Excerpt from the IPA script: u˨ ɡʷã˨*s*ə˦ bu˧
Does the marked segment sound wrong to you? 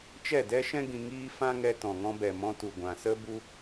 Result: no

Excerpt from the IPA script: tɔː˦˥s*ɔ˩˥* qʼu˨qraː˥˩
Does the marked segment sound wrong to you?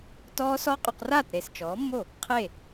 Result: yes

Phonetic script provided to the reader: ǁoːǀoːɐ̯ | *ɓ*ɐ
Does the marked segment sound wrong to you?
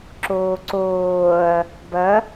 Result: yes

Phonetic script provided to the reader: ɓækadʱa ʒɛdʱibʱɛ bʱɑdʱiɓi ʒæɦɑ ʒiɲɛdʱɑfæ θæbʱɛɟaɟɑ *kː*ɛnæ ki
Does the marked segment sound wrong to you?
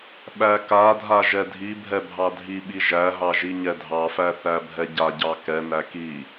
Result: yes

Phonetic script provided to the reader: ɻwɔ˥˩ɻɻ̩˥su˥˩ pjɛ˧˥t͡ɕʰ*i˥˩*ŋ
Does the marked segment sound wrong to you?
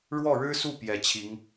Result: yes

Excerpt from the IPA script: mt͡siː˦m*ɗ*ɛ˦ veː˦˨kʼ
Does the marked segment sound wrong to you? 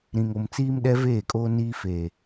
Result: no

